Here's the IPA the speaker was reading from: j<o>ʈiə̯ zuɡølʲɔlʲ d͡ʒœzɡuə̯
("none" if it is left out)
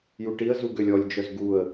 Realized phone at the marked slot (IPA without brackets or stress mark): u